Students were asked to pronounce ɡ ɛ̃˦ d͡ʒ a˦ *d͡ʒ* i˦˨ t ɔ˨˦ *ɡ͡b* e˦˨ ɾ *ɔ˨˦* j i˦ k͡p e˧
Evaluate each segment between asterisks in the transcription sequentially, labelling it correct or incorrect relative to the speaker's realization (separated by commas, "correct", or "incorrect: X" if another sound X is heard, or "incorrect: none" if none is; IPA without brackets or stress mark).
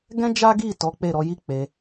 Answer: incorrect: ɡ, incorrect: k͡p, correct